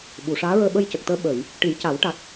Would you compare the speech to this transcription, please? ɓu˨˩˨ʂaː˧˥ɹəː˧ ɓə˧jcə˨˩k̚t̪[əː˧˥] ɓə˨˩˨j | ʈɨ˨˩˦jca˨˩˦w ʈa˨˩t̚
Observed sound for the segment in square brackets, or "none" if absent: əː˧˥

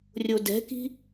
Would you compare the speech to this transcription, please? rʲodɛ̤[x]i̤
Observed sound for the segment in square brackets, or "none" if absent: k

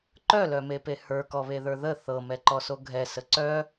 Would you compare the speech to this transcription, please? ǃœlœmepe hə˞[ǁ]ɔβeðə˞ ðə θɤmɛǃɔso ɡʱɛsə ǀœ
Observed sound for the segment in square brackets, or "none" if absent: k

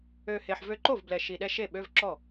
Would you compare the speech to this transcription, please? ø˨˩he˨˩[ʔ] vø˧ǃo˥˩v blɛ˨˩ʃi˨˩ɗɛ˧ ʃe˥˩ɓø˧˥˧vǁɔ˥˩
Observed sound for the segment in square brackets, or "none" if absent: ħ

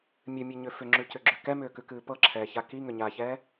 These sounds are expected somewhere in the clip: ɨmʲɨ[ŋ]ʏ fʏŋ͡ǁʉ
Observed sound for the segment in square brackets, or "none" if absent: ɲ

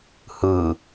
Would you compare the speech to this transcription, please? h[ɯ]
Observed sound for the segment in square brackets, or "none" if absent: ɯ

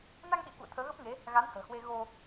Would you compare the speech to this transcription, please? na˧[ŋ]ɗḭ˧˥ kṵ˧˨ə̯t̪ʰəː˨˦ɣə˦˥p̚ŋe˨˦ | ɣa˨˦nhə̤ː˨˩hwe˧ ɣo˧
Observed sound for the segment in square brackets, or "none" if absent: ŋ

